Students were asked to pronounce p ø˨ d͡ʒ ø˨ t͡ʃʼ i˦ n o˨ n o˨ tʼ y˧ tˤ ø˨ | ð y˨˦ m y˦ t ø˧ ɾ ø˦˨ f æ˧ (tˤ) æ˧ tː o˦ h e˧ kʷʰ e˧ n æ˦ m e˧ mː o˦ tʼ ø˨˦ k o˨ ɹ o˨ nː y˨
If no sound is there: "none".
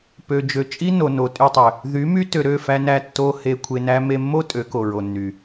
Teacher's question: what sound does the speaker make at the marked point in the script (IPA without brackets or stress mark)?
n